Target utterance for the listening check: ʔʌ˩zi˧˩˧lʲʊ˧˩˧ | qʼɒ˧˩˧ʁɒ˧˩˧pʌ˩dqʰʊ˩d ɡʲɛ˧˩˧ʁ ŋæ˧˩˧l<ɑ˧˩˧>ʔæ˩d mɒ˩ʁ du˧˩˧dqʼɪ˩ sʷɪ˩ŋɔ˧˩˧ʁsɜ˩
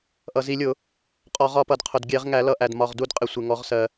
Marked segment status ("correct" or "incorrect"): incorrect